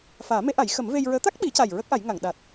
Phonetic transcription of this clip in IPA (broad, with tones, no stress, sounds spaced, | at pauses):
f aː˨˩˦ m e˧˥ ʔ a˨˩˦ j x ə˨˩˦ m v e˧ j ɹ əː˧˥ t̪ a˦˥ k̚ ɓ i˨˩˦ c a˨˩ j ɹ ə˦˥ k̚ ʔ a˨˩˦ j ŋ a˨˩˨ ŋ ɗ a˨˩ t̚